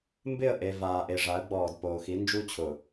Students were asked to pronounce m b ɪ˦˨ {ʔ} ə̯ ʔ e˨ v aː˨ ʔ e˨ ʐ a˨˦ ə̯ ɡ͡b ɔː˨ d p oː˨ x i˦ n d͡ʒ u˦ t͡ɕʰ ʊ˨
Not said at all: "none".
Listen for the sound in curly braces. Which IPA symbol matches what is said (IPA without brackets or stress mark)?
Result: none